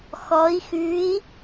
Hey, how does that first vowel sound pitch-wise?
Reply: rising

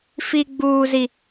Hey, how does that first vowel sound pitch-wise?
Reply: high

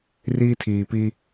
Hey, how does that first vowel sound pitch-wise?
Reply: high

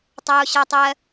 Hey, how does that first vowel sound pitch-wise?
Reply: high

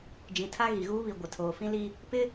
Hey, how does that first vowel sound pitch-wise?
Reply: low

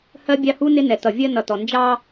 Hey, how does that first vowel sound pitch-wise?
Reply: high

